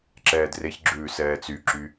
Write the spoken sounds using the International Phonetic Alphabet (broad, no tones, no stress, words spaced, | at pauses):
ǁɛːdreçɡ͡ǁʉː sɛːt͡syǁy